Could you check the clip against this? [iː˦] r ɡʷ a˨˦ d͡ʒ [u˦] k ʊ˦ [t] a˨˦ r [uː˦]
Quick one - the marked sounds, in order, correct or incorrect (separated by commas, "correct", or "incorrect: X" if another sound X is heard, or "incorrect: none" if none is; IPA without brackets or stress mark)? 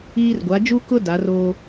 correct, correct, incorrect: d, incorrect: oː˦